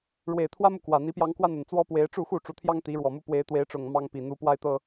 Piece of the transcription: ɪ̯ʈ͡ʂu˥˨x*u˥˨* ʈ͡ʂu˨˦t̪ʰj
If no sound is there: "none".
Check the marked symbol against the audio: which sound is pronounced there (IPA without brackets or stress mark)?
u˥˨